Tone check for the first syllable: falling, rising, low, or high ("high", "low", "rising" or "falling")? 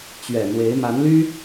low